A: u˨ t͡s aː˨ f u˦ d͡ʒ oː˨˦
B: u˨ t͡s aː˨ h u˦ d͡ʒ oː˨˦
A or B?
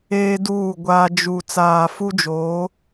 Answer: A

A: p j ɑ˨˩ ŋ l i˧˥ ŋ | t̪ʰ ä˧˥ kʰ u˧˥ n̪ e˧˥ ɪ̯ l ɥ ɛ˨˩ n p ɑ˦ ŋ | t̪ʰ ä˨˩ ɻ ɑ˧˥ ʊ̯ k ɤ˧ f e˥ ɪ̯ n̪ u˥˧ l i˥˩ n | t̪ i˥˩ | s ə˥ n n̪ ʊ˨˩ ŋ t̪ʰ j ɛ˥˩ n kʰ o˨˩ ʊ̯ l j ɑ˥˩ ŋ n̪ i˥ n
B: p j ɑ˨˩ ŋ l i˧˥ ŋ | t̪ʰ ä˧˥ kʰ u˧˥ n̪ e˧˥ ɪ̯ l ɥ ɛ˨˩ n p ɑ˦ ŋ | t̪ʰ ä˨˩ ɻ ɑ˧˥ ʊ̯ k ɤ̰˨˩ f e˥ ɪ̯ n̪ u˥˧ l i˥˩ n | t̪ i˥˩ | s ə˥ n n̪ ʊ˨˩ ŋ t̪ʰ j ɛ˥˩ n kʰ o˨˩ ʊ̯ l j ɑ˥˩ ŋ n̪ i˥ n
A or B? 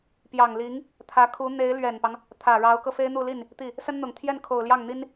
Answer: A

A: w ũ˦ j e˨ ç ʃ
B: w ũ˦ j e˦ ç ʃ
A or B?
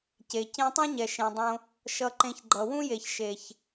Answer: A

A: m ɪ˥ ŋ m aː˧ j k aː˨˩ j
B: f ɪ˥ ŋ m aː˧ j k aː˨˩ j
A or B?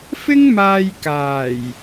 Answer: B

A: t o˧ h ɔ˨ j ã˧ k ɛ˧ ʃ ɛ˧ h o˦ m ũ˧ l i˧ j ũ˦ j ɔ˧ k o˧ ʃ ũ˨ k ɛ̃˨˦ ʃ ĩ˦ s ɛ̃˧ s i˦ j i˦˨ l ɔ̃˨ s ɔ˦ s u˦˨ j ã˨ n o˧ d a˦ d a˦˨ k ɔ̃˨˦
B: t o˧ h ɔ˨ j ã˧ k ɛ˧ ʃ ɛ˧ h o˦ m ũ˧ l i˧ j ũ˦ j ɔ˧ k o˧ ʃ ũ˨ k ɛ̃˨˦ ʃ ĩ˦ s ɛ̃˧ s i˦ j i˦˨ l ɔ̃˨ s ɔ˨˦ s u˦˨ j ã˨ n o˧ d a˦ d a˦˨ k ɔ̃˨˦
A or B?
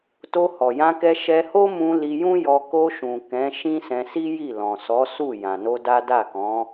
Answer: B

